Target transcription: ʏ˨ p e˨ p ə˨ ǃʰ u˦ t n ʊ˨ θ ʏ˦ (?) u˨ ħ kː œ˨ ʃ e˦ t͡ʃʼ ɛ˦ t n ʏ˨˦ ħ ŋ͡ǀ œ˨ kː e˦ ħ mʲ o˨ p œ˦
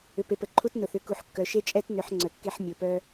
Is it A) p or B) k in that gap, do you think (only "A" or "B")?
B